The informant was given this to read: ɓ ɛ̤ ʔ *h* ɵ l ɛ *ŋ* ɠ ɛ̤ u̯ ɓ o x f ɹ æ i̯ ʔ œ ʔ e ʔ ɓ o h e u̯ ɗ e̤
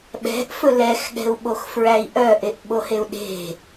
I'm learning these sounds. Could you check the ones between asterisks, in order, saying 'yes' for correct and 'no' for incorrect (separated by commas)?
no, no